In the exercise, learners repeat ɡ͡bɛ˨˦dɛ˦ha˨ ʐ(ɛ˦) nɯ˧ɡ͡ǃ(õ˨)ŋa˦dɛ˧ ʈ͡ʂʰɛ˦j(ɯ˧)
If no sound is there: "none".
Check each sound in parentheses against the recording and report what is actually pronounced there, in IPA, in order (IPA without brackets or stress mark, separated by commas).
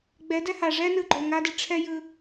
ɛ˦, o˨, ɯ˧